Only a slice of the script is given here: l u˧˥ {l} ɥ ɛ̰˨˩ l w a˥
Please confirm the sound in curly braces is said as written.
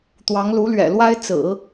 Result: yes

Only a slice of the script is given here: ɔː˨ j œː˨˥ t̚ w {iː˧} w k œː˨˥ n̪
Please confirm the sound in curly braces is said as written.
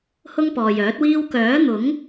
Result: no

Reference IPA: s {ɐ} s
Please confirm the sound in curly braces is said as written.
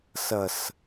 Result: yes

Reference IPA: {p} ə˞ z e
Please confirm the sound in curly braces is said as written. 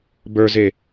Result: no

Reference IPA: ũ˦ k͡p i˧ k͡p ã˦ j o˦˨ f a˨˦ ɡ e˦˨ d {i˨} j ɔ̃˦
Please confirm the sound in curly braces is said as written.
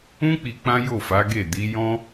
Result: no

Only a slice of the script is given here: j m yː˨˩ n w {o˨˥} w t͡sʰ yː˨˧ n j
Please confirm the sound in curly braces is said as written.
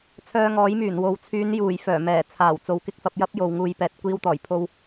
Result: yes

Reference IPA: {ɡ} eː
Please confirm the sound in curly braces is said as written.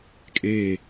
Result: no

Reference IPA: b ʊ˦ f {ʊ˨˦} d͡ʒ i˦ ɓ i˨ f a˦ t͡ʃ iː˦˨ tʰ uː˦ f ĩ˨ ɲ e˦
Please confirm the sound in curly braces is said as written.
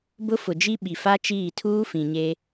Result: no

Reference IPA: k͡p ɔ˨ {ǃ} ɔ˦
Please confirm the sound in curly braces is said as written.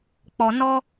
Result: no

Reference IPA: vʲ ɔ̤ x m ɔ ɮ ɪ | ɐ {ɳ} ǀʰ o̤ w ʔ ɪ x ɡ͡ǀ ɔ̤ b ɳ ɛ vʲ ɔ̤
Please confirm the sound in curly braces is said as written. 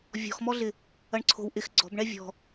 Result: yes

